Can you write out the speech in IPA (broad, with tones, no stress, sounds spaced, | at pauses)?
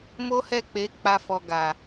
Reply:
m o˦ h ɛ˦˨ k͡p e˨˦ k͡p a˧ f ɔ˨ ɡ a˨